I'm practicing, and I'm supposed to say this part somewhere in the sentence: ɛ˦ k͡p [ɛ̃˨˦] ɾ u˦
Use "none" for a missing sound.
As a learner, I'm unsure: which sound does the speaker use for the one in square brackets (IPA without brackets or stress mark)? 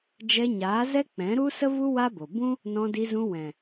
ɛ̃˨˦